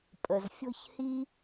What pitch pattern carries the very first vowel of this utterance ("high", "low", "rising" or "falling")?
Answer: low